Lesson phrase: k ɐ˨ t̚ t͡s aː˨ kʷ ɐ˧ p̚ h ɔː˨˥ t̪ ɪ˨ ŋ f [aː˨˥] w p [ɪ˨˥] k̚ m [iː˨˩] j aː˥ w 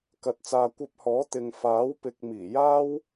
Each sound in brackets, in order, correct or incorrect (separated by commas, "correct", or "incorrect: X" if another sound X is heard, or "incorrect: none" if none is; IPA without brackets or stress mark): correct, correct, correct